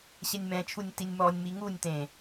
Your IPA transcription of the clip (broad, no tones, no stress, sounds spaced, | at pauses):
ɕ ɛ nʲ m ɛ̃ t͡ʃʰ u nʲ t i nʲ m ɔ nʲ m i ŋ u nʲ t ẽ